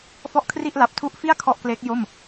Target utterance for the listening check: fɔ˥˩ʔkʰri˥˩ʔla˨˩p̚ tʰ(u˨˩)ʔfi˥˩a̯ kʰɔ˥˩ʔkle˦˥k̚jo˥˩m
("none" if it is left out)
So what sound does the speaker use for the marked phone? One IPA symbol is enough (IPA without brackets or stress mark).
u˦˥